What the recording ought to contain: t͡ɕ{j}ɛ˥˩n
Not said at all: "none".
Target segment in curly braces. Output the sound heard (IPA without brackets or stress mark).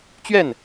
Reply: ɥ